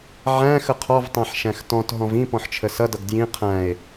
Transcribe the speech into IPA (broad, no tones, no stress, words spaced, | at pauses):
ʕæ̃ xəqʰɔvtˤæ̃ħ ʃæ̃xtɔ̃tɦɔ̃v ĩ pɔ̃ħt͡ʃʰəsʌdʌɡ djĩ qʰæ̃e̯